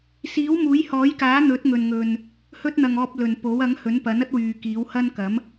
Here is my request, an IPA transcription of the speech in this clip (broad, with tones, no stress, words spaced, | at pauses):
siː˨˥wmuː˨˥jhɔː˨˥jkaː˨˥ n̪ɵ˨˥t̚ ŋɵ˨nŋɵ˨n | hɵ˧t̚n̪ɐ˨ŋ ɔː˧p̚lɵ˨npo˨˥w ɐ˨˥ŋhɵ˨˥npɐ˨˥n ɐ˥t̚wyː˨ kiː˨˥whɐ˥n kɐ˨˥m